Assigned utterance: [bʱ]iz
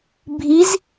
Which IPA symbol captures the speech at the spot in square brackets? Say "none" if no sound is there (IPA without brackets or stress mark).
bʱ